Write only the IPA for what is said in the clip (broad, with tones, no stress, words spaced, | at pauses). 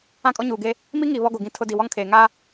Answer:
ã˦kʼɔ˦ɲuː˨ɡe˦ | mi˦ŋi˨ βɔ˦ɡo˨ɡĩ˦ tʰʊ˦di˨ wɔ˦ŋkʰeː˨ ŋa˦